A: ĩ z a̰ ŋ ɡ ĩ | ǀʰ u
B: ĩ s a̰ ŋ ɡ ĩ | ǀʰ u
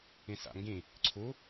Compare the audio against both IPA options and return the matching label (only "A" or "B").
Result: B